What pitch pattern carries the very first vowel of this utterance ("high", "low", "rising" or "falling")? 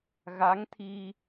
rising